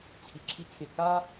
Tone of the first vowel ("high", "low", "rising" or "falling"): low